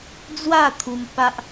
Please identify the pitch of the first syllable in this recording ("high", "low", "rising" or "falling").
falling